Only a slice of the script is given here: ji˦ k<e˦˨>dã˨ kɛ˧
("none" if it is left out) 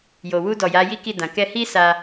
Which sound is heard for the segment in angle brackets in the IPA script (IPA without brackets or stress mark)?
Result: i˦˨